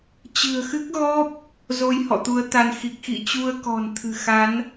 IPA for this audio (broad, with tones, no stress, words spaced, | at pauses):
t͡ɕɨ̤˨˩ə̯xɨ˦˥k̚ɣɔ˦˥p̚ | zo˧jhɔ̰˧˨t̪u˨˦ə̯t̪a˧n xi˨˩k̚ xḭ˧˨t͡ɕu˧ə̯ kɔ̤˨˩nt̪ʰɨ̤˨˩xa˨˦n